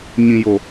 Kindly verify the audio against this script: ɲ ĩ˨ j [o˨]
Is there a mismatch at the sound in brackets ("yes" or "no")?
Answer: no